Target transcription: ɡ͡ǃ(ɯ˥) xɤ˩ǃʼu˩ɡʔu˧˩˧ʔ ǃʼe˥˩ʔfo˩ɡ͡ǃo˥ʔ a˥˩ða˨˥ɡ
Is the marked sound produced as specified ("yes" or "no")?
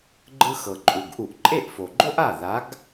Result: yes